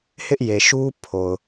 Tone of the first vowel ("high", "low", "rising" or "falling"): high